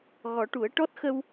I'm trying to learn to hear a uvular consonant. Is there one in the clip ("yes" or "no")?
no